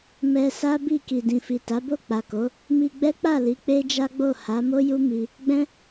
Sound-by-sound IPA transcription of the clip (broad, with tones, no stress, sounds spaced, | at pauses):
m ɛ˧ s a˦ b i˦˨ k i˨ d ĩ˨ f i˨ t a˨˦ b o˦˨ k͡p a˨ k o˨˦ | m i˧ ɡ͡b ɛ˦ k͡p a˦˨ l i˨˦ k͡p e˦ d͡ʒ a˦ ɡ͡b o˦˨ h a˨˦ m o˦ j u˦ m i˧ | ɡ͡b ɛ̃˦